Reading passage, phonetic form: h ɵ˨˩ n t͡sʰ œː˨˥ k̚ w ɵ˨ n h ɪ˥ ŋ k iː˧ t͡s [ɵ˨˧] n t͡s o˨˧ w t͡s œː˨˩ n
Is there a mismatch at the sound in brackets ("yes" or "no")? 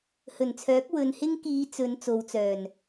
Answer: no